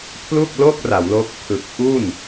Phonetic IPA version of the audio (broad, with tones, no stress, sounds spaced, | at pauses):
pʰ l u˥˩ k̚ l o˥˩ k̚ r a˩˦ w l oː˦˥ k̚ pʰ ɯ˨˩ k̚ ʔ u˥˩ n